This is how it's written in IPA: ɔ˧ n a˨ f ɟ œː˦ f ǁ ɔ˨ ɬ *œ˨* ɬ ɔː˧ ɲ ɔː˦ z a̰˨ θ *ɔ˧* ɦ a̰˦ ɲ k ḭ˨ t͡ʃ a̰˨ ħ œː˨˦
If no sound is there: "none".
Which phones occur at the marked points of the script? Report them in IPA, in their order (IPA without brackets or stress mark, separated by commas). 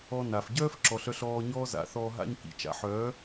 œ˧, ɔː˧